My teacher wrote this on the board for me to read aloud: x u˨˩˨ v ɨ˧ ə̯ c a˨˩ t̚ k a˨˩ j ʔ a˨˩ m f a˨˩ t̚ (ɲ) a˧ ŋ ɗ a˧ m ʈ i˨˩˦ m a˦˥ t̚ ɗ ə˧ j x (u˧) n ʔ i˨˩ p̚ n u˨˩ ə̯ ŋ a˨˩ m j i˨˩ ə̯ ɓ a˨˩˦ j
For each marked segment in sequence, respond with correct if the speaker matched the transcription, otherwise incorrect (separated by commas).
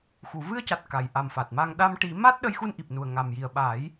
incorrect, correct